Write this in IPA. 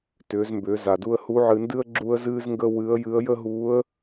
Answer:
tʏː˩˧zmbʏː˩˧ za˩du˧ə̯ hu˧˥ʕɨ˧ndɨ˥ə̯ ɡ͡ǁu˥ə̯zɨː˥zŋɡə˥ wɨ˧˥ə̯jɨ˧˥ə̯ jə˥ɦuː˧˥ə̯

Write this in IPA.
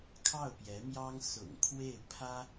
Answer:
kʰɑ˥˩ʊ̯pjɛ˧˥mjɑ˥ŋ sʊ̰˨˩ŋ kʰwe˥˩ɪ̯pʰä˥

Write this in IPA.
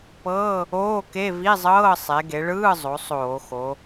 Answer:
pɤː˧˥˧ | oː˧˥˧ke˧˥˧ vi˧˥˧zˤɤː˧˥˧ sˤe˩˧ɡe˩˧ɭɯː˧˥˧zˤo˩˧ sˤoː˧˩˧xo˩˧

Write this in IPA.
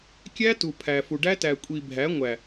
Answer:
kʲæ˦tu˨ pʰæ˨fu˨ɖæ˦ tæ˨kʷʼi˨ bʱæ˨˦ŋʷæ˨

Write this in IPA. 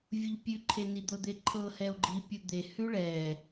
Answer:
vʲuʎpʲʉǃʰe nid̪ɤd̪eǃʰɤ hɛo̯ɡ͡ǃi pʲud̪e hʉɭɛ

